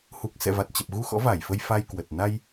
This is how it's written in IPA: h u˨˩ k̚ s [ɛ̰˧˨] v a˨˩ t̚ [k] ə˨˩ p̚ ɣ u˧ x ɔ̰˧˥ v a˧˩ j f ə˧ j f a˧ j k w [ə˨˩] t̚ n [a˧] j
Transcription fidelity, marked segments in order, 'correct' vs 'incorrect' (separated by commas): correct, incorrect, correct, correct